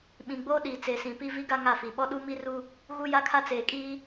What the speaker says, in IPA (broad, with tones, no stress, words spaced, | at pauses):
ɓĩ˨ɡ͡boː˦ɗiː˨ t͡se˨sĩ˨ pi˦vi˦ɡa˦ ŋa˦˨fi˨ ɓɔ˦ ɗu˦mi˦ru˦ | ɣu˦ja˦kʰa˦ t͡seː˨kʼiː˦